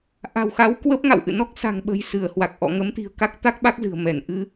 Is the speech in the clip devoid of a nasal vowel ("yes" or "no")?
yes